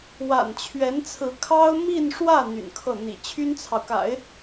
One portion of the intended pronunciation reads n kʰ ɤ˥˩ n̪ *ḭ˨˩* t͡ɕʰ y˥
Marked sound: correct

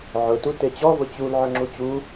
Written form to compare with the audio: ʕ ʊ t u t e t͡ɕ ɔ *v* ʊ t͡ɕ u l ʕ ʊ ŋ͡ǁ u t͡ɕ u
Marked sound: correct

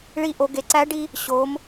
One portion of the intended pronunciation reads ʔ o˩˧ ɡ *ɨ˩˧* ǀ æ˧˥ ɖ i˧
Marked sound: incorrect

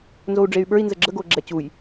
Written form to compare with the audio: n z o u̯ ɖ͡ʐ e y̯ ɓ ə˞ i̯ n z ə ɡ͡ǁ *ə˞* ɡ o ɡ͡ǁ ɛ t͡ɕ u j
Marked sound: incorrect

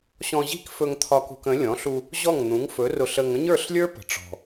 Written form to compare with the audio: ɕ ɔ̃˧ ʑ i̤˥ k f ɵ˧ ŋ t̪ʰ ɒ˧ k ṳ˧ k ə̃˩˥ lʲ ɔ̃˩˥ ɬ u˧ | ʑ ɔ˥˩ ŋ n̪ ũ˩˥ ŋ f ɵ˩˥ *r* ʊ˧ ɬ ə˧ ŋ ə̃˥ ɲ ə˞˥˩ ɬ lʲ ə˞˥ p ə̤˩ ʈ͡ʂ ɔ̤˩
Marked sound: correct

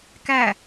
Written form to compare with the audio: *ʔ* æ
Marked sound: incorrect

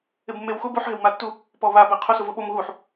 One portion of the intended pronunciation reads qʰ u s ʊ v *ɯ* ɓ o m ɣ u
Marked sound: incorrect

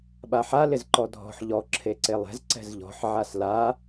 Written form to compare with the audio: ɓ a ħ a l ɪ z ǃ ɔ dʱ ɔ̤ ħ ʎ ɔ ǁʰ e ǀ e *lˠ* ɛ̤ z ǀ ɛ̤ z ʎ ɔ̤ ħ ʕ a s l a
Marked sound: correct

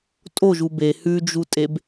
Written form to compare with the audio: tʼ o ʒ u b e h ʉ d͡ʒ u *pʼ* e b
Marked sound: incorrect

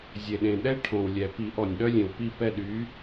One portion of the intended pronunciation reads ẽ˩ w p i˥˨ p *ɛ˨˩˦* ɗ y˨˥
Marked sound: incorrect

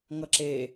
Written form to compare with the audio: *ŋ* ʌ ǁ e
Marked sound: correct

